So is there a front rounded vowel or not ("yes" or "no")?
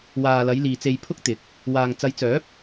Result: yes